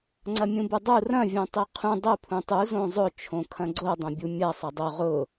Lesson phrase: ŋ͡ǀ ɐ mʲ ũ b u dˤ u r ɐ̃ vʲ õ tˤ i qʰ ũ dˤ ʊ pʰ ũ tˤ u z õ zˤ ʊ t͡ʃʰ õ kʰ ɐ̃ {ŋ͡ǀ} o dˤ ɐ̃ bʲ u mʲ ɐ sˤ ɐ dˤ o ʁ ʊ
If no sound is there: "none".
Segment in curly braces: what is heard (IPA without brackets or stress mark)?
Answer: ɡ͡ǀ